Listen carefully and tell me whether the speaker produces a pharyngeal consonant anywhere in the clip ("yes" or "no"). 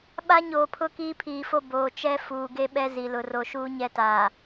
no